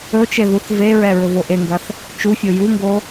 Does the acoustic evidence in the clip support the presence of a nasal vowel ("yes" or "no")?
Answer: no